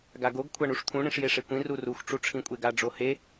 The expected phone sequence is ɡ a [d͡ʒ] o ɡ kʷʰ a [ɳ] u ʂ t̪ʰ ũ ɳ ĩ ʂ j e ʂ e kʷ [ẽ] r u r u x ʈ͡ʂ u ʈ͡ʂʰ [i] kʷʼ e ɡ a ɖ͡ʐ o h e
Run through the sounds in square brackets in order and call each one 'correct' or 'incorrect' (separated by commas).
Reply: incorrect, correct, incorrect, incorrect